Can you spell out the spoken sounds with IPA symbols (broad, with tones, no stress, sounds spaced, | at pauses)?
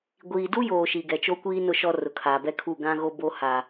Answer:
ɡʷ iː˨ d u˦ j oː˨ ʃ i˨ ɡ ɛ˨ t͡ʃ o˦ kʷ iː˦ n ʊ˨ ʃ ɔ˨ r ʊ˨ kʰ aː˨ b ɛ˦ kʰ u˦˨ ɡ ã˦ ɣ o˦ b o˦ h a˨